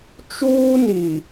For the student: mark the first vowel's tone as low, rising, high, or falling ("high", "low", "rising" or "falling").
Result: high